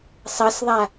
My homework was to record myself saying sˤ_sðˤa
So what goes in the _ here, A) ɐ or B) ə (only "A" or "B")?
A